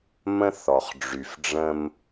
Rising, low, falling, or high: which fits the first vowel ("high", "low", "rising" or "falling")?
high